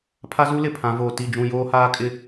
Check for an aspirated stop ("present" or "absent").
present